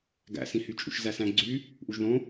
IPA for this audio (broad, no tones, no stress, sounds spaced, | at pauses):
ɡ æ̰ s ĩ h y t͡ʃʼ ṵ ʃ z æ s æ̃ ɡ͡ǀ y | ʔ u ʒ ð õ